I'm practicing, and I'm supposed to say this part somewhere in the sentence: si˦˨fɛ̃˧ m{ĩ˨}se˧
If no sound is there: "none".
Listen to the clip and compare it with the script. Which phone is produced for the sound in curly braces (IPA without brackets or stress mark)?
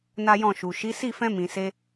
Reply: ĩ˨